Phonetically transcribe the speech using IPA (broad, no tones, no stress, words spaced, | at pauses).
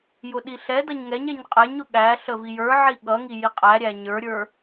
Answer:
jʊɗiɬɛdʌɲ ŋɛɲɛɲ qʼɛɲʊ ɠæɬə vijə˞ʕi ɠʌŋi jiqʼæɾʲæ ɲə˞ɾʲə˞